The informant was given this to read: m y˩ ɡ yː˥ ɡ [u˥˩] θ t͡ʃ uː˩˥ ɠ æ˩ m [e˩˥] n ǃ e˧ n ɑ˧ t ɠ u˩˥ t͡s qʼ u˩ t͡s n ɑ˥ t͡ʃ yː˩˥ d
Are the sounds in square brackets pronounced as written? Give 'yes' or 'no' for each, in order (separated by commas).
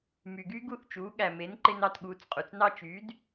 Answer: yes, yes